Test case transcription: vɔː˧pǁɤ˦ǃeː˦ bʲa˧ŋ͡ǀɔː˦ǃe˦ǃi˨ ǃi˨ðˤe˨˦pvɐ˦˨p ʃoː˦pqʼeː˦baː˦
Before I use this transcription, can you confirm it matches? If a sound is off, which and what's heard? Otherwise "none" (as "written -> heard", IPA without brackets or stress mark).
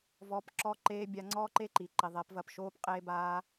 ɤ˦ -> ɔ˦